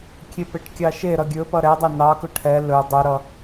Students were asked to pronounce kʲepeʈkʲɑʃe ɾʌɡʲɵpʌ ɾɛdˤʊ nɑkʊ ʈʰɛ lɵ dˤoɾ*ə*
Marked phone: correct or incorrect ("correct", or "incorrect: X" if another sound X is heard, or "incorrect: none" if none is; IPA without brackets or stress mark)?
incorrect: ʌ